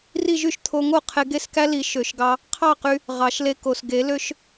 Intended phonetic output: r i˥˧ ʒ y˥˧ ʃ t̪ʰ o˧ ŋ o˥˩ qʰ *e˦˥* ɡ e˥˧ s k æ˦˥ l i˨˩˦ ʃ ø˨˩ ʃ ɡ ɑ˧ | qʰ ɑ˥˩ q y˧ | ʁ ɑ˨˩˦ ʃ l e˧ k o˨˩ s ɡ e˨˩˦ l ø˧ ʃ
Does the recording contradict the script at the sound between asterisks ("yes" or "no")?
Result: yes